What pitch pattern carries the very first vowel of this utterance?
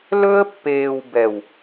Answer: high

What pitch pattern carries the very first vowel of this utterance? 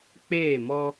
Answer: falling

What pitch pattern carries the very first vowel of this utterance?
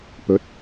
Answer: rising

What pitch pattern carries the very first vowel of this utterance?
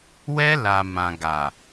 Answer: high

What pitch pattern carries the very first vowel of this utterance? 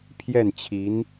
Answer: falling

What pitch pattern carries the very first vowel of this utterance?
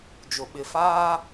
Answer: low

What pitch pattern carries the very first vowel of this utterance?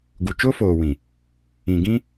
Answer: low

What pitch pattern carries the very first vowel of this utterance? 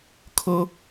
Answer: high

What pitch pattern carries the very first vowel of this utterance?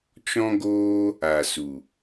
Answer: high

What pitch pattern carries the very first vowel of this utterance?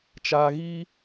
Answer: low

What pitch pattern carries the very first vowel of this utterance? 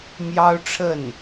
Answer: high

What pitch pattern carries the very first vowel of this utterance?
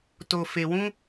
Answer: low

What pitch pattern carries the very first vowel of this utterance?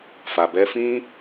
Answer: low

